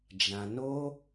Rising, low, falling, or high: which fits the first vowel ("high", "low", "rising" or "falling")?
low